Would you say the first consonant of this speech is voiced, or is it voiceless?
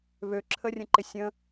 voiced